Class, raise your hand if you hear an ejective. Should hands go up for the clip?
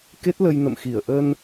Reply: no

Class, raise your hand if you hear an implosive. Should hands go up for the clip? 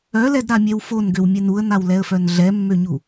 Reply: no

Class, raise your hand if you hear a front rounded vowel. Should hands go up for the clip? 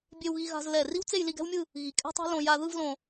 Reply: no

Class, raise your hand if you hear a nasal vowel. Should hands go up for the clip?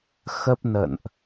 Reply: no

